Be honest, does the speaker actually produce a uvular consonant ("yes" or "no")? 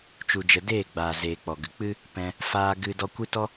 no